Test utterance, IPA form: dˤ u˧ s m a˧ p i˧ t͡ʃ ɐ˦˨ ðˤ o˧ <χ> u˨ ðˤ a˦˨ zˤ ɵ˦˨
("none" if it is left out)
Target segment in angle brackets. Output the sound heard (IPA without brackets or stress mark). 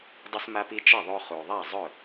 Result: χ